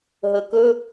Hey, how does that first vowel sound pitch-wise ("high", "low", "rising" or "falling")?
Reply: low